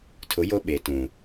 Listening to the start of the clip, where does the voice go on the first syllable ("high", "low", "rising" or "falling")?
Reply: rising